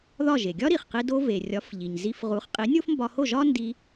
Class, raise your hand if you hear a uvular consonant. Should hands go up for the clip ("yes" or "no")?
yes